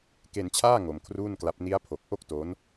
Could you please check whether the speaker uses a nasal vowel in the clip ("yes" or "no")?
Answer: no